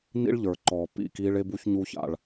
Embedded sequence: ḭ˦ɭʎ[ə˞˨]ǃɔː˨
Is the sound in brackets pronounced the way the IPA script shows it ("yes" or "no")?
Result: yes